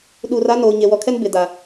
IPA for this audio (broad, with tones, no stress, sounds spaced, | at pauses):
ɗ uː˨ r a˦ n oː˨ ɲ e˨ w ɔ˨ kʰ ɛ˦ n b ɪ˨ d a˨